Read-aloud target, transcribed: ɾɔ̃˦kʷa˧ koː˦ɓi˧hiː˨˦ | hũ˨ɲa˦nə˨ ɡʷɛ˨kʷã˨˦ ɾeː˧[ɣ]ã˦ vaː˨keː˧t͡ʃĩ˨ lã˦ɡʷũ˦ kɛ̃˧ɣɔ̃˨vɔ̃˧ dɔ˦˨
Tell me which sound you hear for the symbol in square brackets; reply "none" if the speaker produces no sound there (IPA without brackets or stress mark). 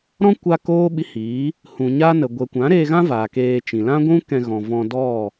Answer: ɣ